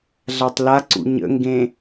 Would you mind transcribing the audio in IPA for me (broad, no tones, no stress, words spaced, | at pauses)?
ɮatˤlaǀṵ ɲə̰ŋɡẽ